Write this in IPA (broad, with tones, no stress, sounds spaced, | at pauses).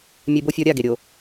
mʲ e˦ b o˦ fʲ ɔ˦ ɾʲ a˦˨ ɡ e˨ ɾʲ o˨